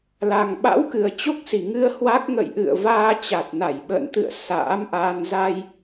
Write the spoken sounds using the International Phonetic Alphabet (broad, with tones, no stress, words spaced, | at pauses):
la˨˩ŋɓa̰˧˥wkɨ˨˩ə̯ t͡ɕo˦˥k̚si˧˩ŋɨ˧ə̯ hwa˦˥k̚ ŋə̰˧˨jʔɨ̰˧˨ə̯vaː˧ t͡ɕa˨˩t̚na˧˩jɓə̰ː˧˨nt̪ɨ̰˧˨ə̯ sa̰ː˧˥mʔaː˧n za˧j